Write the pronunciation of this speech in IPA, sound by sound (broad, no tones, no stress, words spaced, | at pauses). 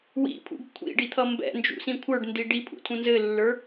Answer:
wḭpʰṵɡ kʷʰḭɖit̪ʰʌ mbɛ̰nd͡ʒṵsĩ kʷʰə˞ɖndi ɖipʰṵtʰũ nzɘlːə˞